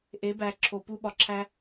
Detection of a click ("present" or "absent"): present